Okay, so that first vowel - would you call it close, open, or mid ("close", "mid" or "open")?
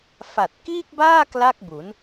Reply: open